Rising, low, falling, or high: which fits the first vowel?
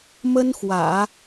high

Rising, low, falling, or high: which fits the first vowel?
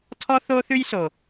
high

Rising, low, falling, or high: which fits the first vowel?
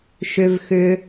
low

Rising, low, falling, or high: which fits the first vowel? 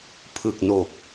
low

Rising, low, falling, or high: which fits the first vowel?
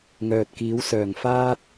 low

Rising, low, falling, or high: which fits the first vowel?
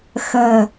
low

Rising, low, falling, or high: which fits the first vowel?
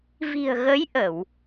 low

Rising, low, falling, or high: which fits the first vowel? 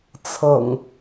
low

